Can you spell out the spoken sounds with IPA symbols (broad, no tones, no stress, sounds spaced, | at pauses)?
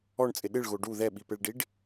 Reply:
ɔ ɳ t͡sʼ ɪ ɗ ɪ ɭ ɣ o ɖ u ð ɛ ɓ i p e ɭ ɖ i ɖ